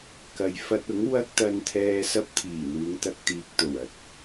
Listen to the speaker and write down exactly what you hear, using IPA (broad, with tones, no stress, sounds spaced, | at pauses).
k ɐ˨ j f ɐ˧ t̚ ʊ˨˥ ŋ w ɐ˥ k̚ t̪ ɐ˧ n t̪ʰ ɛː˧ s ɐ˥ p̚ t̪ʰ iː˨˩ n̪ uː˨˧ ŋ t̪ ɐ˧ k̚ t̪ iː˨ k̚ t̪ o˨˩ w ɐ˨˥ t̚